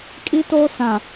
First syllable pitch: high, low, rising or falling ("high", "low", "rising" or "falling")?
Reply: high